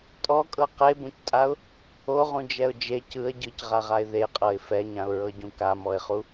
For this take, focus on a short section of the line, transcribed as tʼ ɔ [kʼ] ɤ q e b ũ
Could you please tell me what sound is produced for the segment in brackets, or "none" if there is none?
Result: kʼ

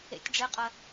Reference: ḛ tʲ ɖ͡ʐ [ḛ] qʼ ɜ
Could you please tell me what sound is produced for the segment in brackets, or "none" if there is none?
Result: e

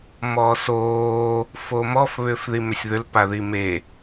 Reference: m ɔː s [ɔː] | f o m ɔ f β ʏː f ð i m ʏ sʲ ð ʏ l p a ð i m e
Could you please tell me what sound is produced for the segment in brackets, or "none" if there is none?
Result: oː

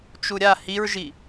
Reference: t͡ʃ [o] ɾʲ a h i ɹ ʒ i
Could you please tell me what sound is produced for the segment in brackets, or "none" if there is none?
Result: u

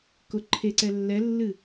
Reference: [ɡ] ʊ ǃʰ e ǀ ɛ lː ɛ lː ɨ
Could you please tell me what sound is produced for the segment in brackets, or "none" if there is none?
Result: k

